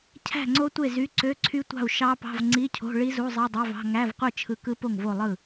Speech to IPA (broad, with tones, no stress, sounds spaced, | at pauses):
cʰ æ̤˥˩ ŋ͡ǀ o˦˥ tʷ e˥˩ z y˧˥˧ ǀ ø˧˥˧ ǀʰ y˦˥ tʷ ɑ̤˥˩ u̯ ʃ ɑ˦˥ p ɑ̤˧˥˧ v ŋ͡ǀ i˧˥˧ cʰ o̤˧˥˧ ɭ i˦˥ z u˧˥˧ zˤ i˧˥˧ dˤ ø˧˥˧ v ɑ̤˧˥˧ ŋ æ˧˥˧ v qʷ ɯ˥˩ t͡ʃʰ ɯ˦˥ k ɯ˦˥ p o˥˩ ŋ v o˥˩ lˠ ɯ˥˩